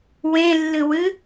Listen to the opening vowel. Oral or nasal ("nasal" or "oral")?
nasal